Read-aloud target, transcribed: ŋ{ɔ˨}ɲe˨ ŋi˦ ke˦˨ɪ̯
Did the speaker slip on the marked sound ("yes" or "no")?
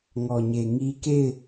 no